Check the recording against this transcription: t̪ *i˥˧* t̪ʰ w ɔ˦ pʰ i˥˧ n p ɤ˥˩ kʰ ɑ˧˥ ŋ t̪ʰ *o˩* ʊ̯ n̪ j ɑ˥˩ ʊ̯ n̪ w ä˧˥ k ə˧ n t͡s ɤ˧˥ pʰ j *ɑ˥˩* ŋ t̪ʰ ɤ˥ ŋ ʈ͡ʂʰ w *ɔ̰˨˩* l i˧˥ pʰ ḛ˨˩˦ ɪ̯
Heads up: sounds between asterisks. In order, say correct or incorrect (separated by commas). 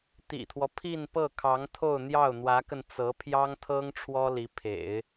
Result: incorrect, incorrect, incorrect, incorrect